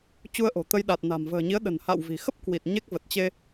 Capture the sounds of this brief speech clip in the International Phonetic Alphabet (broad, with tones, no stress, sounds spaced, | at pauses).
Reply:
t͡ɕ u˧ ə̯ ʔ o̤˨˩ t̪ ə˧ j ɗ a˨˩ t̚ n a̤˨˩ m v ə̤ː˨˩ ɲ i˨˦ ə̯ ɗ ə̤˨˩ n h a̰˧˨ w v i̤˨˩ x ə˦˥ p̚ k w i˨˩ t̚ ɲ e˦˥ k̚ v ə˨˩ t̚ t͡ɕ e˧